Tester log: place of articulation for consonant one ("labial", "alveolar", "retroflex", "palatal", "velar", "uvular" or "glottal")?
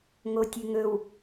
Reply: velar